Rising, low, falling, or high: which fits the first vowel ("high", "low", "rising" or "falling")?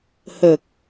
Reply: low